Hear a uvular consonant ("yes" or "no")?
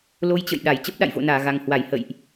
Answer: no